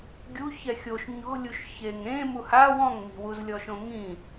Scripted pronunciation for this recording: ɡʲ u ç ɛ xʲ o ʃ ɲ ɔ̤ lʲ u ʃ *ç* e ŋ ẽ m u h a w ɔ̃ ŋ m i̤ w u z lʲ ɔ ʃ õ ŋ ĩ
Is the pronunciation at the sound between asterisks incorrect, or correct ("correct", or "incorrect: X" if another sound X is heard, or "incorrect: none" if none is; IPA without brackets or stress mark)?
correct